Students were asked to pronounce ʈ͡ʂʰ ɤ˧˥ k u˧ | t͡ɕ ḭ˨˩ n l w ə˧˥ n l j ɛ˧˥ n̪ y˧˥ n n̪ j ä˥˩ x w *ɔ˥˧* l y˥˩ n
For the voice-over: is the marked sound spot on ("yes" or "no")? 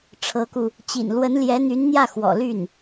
no